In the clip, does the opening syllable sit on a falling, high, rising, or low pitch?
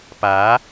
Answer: rising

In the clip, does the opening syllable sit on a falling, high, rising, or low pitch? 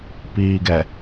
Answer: low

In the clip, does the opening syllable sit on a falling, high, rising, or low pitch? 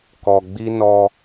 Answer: low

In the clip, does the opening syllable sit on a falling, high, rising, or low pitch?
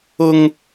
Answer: high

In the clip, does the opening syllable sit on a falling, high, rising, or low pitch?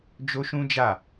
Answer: high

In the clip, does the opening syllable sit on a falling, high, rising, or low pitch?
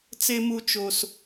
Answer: high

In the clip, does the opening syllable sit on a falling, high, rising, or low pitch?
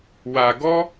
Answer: low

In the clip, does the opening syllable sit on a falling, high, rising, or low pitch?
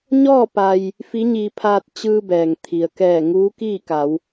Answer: falling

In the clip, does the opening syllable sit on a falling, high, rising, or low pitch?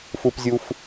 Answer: high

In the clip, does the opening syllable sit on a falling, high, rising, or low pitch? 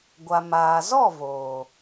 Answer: low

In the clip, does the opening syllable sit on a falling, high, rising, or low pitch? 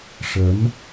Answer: rising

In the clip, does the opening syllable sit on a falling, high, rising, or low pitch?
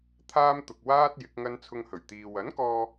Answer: high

